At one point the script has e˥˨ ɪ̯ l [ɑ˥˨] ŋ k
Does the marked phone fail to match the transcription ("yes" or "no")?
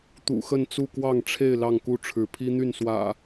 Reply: no